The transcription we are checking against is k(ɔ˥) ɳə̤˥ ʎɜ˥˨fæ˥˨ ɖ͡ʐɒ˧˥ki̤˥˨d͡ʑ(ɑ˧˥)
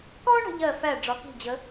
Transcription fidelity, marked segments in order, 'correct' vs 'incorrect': correct, incorrect

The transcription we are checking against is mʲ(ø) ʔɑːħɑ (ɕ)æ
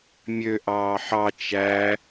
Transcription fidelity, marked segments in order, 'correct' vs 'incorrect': correct, incorrect

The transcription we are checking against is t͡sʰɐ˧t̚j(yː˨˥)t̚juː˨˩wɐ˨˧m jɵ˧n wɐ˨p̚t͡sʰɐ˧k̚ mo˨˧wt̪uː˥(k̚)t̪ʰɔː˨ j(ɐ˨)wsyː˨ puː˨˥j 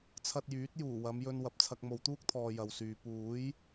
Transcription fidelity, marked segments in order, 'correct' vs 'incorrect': correct, correct, correct

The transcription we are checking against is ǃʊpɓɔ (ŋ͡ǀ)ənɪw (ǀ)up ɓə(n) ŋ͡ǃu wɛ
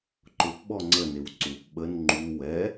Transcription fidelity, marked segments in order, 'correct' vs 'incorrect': correct, correct, correct

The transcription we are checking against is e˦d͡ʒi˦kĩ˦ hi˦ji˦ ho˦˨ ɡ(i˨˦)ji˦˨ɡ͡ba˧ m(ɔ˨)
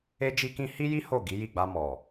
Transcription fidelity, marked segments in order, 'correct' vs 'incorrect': correct, correct

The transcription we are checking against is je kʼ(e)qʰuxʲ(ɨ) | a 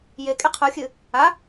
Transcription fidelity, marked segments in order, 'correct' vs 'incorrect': correct, correct

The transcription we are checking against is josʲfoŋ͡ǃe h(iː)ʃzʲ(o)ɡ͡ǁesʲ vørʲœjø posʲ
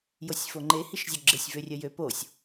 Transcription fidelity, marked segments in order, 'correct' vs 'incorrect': incorrect, correct

